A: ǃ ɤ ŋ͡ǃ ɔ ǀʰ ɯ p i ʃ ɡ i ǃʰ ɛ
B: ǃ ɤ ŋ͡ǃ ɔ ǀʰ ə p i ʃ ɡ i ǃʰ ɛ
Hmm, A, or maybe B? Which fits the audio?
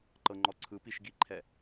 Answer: A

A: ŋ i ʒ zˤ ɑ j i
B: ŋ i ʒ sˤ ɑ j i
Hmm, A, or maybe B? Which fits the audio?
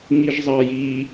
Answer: A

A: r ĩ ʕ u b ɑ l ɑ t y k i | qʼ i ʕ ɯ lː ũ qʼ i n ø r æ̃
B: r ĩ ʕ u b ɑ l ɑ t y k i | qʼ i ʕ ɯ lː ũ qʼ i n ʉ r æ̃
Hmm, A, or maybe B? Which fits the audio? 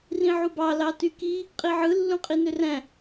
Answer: A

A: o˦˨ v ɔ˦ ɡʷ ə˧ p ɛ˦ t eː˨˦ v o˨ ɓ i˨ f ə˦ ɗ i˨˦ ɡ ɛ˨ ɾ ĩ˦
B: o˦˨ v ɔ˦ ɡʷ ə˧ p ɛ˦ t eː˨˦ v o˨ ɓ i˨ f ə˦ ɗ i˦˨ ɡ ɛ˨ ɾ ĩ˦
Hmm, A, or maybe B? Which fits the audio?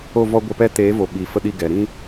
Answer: B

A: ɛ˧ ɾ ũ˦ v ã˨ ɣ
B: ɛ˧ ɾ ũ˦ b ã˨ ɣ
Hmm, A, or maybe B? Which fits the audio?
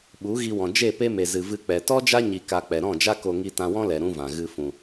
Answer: A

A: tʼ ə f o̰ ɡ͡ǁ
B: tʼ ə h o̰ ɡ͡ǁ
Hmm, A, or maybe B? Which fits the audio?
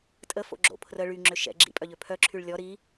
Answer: A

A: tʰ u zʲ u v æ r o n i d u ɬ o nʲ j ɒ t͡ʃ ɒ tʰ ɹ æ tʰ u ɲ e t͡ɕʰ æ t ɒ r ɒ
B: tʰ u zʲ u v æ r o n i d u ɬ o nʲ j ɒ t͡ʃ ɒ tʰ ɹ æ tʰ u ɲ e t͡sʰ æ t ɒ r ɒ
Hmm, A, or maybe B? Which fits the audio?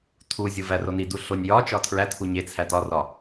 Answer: B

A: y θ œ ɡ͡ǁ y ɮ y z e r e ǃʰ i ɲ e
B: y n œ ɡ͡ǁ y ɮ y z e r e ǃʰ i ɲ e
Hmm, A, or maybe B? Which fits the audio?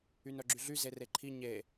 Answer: B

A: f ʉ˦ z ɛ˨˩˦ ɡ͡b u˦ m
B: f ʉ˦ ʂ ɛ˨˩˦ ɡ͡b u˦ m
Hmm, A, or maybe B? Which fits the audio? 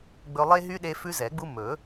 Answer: A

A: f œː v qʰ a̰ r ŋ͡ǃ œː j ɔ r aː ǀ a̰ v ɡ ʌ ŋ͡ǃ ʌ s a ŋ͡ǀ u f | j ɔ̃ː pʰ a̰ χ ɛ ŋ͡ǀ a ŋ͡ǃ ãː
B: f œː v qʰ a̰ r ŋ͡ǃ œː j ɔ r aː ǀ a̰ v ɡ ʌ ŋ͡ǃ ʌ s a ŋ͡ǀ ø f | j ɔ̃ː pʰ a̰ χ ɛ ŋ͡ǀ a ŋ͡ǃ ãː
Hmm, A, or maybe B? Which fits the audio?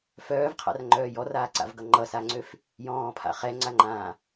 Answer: B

